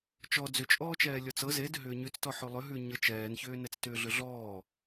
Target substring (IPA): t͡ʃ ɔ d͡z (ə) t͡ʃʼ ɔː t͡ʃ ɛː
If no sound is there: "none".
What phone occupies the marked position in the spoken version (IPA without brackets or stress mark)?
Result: ʏ